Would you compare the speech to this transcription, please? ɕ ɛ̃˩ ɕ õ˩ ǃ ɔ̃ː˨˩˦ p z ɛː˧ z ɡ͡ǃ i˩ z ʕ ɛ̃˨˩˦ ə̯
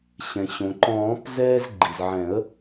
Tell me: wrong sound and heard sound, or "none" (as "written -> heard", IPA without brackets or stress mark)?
none